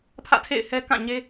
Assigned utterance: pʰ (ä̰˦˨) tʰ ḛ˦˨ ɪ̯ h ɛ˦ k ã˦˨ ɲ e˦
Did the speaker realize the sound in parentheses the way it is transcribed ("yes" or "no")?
yes